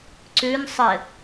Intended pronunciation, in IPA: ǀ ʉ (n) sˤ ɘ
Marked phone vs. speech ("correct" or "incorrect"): correct